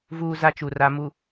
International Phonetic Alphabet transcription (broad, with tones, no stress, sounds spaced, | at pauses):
v uː˦ z a˦ t͡ʃ u˨ r a˨ m u˨